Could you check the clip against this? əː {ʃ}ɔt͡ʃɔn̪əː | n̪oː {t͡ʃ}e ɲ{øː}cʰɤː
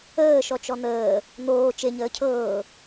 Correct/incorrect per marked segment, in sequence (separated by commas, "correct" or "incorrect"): correct, correct, incorrect